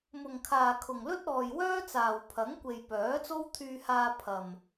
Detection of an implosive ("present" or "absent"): absent